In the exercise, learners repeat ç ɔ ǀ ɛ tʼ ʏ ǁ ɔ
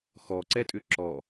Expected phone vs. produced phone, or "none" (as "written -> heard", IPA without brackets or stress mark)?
ç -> x